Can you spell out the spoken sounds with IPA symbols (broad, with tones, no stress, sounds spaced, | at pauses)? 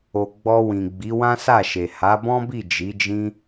o˨ ɡ͡b ɔ˧ w ĩ˨ ɡ͡b i˨˦ w ã˦ s a˦˨ ʃ e˨ h a˨˦ b ɔ̃˦ b i˦˨ d͡ʒ i˨˦ d͡ʒ ĩ˦